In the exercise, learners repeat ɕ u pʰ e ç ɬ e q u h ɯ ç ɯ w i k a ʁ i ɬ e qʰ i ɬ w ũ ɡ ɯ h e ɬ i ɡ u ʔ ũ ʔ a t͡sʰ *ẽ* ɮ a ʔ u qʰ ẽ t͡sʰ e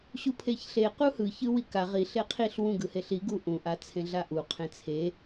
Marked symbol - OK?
yes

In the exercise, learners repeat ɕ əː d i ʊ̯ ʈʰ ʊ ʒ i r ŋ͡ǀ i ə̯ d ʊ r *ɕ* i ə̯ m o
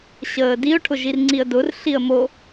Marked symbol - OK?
no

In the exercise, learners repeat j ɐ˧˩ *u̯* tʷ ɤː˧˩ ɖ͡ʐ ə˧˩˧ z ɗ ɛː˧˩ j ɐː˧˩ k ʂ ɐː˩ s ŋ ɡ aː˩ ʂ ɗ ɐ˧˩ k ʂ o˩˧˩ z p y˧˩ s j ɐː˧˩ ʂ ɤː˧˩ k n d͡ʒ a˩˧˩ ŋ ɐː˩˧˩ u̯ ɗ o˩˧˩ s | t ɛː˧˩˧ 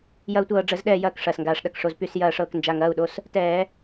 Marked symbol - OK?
yes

